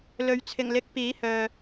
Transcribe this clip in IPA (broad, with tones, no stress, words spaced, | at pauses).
lɵ˨ɥ t͡sʰɪ˨˩ŋlɪ˨˥k̚ piː˨˥hœː˨